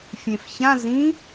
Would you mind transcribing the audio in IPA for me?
fʲẽfçã zĩ

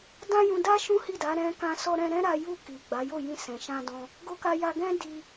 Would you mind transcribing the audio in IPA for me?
dã˦jũ˧da˦ ʃũ˦hi˦˨da˨˦ ɾɛ̃˧kã˧ sɔ˦ɾɛ̃˦ ɾɛ̃˦ɾa˧ ju˧ ki˨ ɡ͡ba˨˦jo˦˨jĩ˧ sɛ̃˨ʃã˧dɔ̃˧ | ɡo˦ka˦ja˦ ɡɛ̃˦di˧

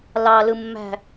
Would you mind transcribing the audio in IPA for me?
lɑlɯmːæ̤

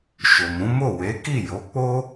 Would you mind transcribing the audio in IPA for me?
ʃo˨mũ˨˦mo˦˨ we˨˦ki˦˨ jo˨˦k͡po˦

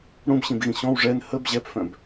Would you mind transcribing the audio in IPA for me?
ɽũbɕĩbɣĩ ɕɔ̃w ʐɛn həb ʑɛpfœ̃b

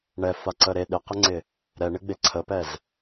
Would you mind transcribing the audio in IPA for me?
ɳɛfaǀə ɾe ɗɪqɪŋ͡ǀɪ | ɾɛɳɪɡ͡be ǀʰəpɛz

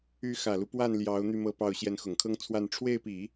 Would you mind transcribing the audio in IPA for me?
y˧˥xä˨˩lu˦pwa˥˩n ljɑ˧˥ʊ̯ n̪y˥˧mɤ˥˧pɑ˥˩ʊ̯ ɕjɛ˧˥nxʊ˨˩ŋkʰɤ˥ŋt͡sʰwa˥˧n ʈ͡ʂʰwe˥˩ɪ̯pi˨˩˦

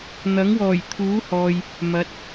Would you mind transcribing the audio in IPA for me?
n̪ɐ˨˥ŋwɔː˨˩jt̪ʰuː˨˥hɔː˨j | mɐ˨˥t̚

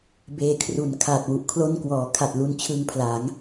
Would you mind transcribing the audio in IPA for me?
beː˧kʰru˩˦nkʰa˨˩t̚ wu˨˩ʔkʰlo˥˩n kwɔː˩˦kʰa˨˩t̚ lu˧nt͡ɕʰɯ˧ŋpʰla˩˦ŋ

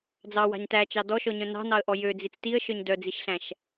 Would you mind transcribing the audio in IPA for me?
d͡zɑwɑ̤ɲ tæt͡ʃɑ dɔʃɔɲœ̃ nɑ̤nɑə̯ʔɔ jød͡zit͡s tiə̯ʃœɲ dœd͡ziʃɬæ̃ʃ

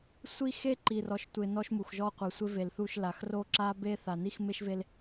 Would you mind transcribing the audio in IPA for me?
sʷi˦xe˦ ǃi˨rɔ˨ʃtʷɪ˨ nɔ˦ʃmu˨xʒɔ˦ qʷe˨sʷɪ˦ve˨lθu˦˨ʃ la˨x ro˦ǁa˦be˦ θa˨ ni˦xme˦ʃve˦l

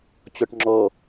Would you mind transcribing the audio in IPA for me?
t͡ɕɔʈŋ͡ǁɔ

